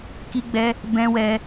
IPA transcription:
ki˧ɡ͡bɛ˧ | bɛ̃˧ wɛ˧

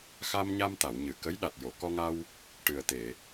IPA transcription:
xa˧mɲa˧mt̪a˨˩˨wɲɨ˨˩˨ kə˧˥j ɗa˨˩t̚jo˨˩˨ kɔ˧ŋa˧w | ʈɨ˨˩ə̯t̪e˨˩˨

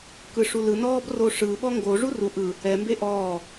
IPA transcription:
kɯʂulɯnɔːb roʂɯ ɓɔŋɡo ʐuru ʔɯ | ɛmbe ʔɔː

